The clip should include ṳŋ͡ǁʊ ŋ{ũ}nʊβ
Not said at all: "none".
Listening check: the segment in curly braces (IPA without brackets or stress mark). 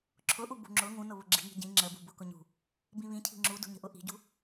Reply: ũ